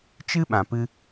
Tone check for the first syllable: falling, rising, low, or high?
high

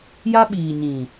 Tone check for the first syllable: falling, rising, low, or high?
high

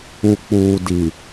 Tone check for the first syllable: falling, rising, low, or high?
low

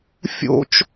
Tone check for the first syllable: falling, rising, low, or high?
high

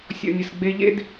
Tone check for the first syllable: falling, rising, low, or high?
low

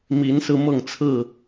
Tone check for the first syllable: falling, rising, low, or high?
rising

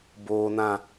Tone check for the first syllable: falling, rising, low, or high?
low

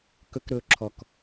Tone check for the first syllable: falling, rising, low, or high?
high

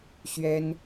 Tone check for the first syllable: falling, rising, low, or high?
high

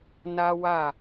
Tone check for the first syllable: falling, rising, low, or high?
high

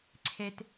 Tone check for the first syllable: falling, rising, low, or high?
low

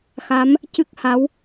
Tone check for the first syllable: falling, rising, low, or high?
rising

